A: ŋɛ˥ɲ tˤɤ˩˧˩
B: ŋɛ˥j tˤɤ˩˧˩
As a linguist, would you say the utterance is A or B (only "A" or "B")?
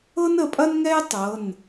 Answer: B